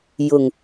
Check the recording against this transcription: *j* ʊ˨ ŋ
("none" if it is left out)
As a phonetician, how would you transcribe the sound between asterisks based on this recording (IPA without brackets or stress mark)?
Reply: j